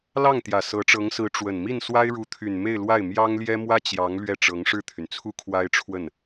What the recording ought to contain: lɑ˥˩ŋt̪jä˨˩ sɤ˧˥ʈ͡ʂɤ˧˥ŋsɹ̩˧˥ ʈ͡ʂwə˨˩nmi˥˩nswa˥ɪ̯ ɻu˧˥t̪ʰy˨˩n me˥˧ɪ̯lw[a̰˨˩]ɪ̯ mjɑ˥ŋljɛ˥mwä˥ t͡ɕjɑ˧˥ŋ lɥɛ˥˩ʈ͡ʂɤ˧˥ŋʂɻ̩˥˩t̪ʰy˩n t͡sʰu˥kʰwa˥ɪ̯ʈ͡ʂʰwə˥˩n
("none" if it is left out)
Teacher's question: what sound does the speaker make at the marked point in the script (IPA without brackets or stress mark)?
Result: a˥˩